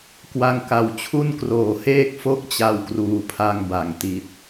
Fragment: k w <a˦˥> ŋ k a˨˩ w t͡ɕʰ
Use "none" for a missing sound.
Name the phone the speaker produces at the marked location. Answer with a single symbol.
a˦˥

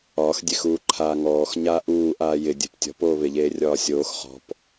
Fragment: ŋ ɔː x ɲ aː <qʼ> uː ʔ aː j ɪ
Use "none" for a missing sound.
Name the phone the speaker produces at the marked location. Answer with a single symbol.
ʔ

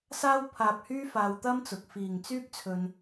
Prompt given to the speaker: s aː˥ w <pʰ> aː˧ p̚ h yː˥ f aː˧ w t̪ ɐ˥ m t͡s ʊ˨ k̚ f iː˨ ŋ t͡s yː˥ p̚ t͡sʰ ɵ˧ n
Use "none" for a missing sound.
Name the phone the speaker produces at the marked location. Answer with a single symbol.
pʰ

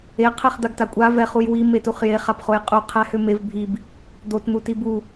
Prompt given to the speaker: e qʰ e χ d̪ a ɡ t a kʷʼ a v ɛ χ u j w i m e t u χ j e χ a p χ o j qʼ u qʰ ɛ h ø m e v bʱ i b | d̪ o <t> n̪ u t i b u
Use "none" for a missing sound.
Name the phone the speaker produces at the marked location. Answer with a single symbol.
t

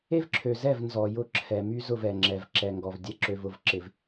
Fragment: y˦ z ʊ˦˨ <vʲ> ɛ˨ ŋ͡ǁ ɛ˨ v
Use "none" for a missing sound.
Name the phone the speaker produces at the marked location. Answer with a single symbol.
v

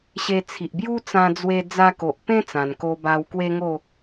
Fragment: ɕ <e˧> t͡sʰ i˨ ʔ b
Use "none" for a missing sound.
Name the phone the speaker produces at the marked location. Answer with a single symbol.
e˧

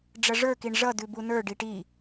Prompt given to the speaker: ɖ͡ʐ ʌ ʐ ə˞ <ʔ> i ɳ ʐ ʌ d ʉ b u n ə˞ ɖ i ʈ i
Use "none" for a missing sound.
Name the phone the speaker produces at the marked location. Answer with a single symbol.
k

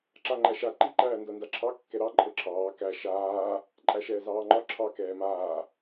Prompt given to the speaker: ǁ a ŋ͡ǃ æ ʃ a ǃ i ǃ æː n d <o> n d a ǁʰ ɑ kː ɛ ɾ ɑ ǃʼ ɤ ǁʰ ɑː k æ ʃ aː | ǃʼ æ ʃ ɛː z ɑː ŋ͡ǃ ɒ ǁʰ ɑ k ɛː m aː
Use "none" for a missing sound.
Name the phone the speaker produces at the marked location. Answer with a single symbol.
ɤ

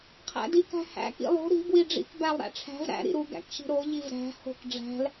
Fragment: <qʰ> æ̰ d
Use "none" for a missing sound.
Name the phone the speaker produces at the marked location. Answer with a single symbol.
qʰ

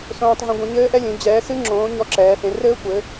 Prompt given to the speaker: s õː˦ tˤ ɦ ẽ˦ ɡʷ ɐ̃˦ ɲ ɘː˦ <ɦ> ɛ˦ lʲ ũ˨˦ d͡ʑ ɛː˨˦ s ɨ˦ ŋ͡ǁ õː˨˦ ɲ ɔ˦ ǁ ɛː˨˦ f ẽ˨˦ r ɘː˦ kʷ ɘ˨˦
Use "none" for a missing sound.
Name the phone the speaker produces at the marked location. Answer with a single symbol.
ʔ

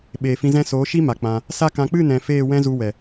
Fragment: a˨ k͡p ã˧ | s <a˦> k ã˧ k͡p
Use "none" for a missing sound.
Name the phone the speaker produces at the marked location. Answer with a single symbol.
a˦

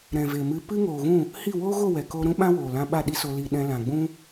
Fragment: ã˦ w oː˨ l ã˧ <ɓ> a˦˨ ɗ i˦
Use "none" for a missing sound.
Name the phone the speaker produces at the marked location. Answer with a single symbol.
ɓ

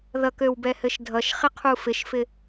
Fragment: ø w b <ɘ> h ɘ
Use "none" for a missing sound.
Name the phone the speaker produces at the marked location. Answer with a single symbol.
ɛ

